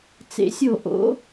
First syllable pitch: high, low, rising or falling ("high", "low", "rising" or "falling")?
rising